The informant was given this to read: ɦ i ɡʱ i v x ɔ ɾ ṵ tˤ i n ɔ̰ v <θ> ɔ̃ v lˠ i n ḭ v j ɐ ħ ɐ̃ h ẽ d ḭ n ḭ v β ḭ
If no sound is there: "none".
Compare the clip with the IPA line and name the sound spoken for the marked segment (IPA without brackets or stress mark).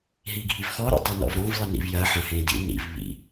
ɾ